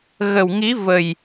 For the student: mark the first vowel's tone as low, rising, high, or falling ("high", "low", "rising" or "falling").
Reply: low